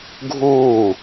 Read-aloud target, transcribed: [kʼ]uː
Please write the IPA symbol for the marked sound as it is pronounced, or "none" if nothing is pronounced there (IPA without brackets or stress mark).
ɡʱ